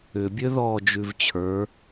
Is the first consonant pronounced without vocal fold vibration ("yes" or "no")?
no